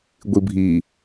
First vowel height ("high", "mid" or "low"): high